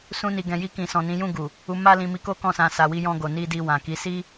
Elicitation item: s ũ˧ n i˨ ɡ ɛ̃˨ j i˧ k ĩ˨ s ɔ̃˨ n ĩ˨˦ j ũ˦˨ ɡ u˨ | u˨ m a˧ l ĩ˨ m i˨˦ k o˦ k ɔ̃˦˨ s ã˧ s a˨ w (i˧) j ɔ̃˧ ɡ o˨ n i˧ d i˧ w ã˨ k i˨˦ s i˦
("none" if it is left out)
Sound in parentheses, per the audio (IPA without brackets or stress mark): i˧